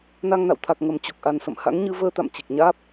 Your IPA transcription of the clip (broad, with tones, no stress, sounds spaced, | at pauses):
n a˧ ŋ n a̰˧˨ w t̪ʰ a˨˩ k̚ ŋ ə˨˩ m t͡ɕ u˨˩ k̚ ʔ a˨˩ n s ə̰˧˨ m h a̰˧˥ ŋ ɲ ɨ˧ v əː˧ t̪ a̰˧˨ m t͡ɕ i˨˩ k̚ ɲ aː˦˥ p̚